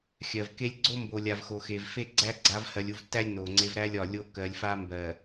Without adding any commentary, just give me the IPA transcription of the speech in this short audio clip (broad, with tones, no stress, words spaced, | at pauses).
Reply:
xʲɜ˨v ke˦lʲ ɡ͡ǀo˦ mbo˨lʲa˨vxo˨ xe˨vfe˦ ɡ͡ǀæ˦ ɡ͡ǀa˨˦vhɜ˨lʲu˨vtːæ˦lʲ no˨ŋ͡ǀe˦v ɾæ˦lʲɒ˨ lʲo˦ kɜ˨lʲfa˦mbɜ˨